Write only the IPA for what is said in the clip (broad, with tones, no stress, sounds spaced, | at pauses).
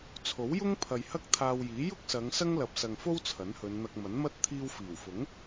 t͡sʰ o˨˥ w j ʊ˥ ŋ pʰ ɐ˨ j h ɐ˥ k̚ t̪ʰ aː˧ w j iː˨˥ j ʊ˥ k̚ s ɐ˨˧ ŋ s ɐ˥ ŋ l ɐ˨ p̚ s ɐ˨ ŋ f o˥ w t͡sʰ ɐ˨˥ n h ɵ˨˧ n n̪ ɐ˧ k̚ m ɐ˨˥ n m ɐ˥ t̚ t̪ʰ iː˧ w f iː˨˩ w f ʊ˨˥ ŋ